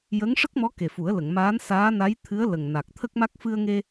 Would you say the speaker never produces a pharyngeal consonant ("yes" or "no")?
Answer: yes